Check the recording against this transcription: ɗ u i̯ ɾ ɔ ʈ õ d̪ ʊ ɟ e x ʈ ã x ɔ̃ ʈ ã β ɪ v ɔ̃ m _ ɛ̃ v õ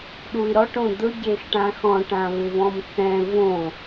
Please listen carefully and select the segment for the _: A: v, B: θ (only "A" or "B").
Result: B